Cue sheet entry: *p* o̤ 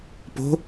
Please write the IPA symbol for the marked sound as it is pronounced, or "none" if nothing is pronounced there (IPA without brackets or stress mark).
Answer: p